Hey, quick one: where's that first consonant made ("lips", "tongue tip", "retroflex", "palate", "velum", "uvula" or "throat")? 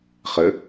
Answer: uvula